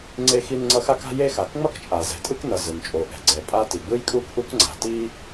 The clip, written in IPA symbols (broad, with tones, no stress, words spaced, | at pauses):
ŋ͡ǀe˥xi˥nŋ͡ǀʌ˥ xa˥ka̤˥je˥xa˩k ŋ͡mʌ˥kt͡ʃʼa˩ zɛ̤˩tʼɯ˥knʌ˩ zɯ˩nt͡ʃʼo˩ʔɛ̤˩ɡ͡ǀɛ˩ pʼa˥ti˩ ɡ͡bɯ˥jkʼu˥k ʔu˥kŋ͡ǀa̤˩ ti˥